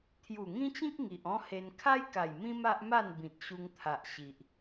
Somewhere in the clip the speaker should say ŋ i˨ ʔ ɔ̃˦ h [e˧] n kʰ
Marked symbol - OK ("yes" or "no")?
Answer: yes